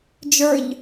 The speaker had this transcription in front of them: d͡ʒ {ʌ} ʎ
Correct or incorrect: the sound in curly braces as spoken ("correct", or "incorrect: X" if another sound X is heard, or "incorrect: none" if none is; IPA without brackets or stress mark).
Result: incorrect: ə˞